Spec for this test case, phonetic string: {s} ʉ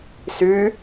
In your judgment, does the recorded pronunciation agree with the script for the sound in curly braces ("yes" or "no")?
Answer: yes